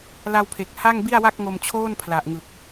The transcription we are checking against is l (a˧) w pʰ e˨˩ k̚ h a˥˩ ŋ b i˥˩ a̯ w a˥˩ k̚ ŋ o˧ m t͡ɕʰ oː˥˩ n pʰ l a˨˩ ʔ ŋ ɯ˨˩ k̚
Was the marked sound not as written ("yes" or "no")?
no